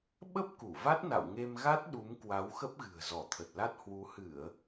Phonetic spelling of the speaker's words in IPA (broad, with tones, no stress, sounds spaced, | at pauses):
ɓ ə˦˥ p̚ k u˧˩ v a˦˥ t̚ n a̰˧˨ w ŋ e˧ m ɣ a˦˥ t̚ ɗ u˨˦ m k w a˨˦ w x ə˦˥ p̚ ɣ ɨ̤˨˩ ə̯ z ɔ˧˩ t̪ʰ ə˨˩ t̚ l a˦˥ t̚ h w u˨˦ h ɨ˧˩˨ ə̯